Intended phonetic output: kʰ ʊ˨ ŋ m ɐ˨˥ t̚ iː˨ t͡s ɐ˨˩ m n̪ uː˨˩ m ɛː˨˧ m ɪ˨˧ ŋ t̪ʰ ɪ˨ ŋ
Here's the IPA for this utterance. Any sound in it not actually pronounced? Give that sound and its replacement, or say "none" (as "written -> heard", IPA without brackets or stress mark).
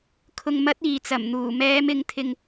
none